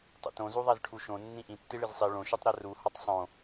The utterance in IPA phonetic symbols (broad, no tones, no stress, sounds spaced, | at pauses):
tˤ ṵ t õ z u ðˤ æ z ʈʰ u ʃ õ nː ĩ ʔ ĩ tː i ɭ i z sˤ i ɭ õ ʃ u tˤ ɾ æ r u h ɒ tˤ sˤ õ